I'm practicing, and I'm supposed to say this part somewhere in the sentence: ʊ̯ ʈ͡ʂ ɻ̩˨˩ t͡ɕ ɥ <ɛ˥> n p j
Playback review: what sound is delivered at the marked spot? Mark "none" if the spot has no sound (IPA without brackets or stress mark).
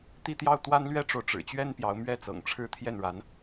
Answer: ɛ˥